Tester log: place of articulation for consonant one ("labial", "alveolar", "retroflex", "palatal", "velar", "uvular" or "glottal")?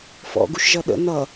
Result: labial